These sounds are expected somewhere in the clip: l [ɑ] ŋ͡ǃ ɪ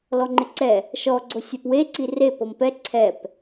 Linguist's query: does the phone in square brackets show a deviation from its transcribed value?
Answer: yes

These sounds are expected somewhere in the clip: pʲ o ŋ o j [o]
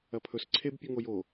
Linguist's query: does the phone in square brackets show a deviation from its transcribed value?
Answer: no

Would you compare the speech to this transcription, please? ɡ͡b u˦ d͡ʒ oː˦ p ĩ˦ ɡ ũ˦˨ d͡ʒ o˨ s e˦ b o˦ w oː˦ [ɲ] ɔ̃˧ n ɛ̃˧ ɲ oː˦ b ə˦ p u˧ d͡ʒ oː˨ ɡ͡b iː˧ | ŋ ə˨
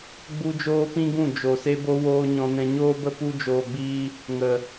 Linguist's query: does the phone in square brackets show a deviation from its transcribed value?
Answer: no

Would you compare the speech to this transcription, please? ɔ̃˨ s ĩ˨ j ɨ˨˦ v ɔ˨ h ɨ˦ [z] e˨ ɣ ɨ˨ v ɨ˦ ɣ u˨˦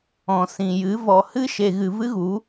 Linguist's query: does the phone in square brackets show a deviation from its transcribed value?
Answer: yes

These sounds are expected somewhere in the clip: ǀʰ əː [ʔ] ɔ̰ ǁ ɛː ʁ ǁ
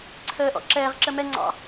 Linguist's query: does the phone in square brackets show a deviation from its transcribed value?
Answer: no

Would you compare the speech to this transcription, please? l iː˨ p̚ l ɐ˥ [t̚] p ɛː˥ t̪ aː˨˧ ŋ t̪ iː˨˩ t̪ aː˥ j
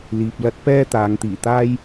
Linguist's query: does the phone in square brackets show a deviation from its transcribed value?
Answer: no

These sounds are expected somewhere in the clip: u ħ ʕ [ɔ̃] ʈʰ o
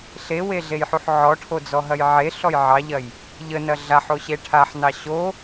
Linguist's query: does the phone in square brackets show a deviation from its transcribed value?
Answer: yes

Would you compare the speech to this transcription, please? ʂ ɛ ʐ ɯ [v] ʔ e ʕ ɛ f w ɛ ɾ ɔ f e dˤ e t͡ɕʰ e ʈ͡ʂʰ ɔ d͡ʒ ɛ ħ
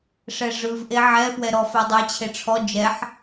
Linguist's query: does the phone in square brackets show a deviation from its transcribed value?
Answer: no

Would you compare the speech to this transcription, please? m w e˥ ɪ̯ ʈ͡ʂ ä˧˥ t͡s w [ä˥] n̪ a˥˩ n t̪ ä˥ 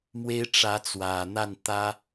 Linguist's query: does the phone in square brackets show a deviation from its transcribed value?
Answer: yes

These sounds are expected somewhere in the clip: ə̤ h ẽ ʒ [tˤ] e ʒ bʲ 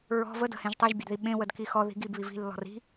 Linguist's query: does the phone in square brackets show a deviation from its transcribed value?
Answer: no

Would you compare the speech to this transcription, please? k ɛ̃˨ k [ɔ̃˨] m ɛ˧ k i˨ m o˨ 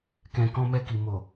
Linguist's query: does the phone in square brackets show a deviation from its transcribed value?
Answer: yes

